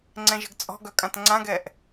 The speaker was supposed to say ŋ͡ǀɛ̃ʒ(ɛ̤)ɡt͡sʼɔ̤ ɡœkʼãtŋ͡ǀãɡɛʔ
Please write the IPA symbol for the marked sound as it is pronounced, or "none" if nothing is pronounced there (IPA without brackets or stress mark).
ə̤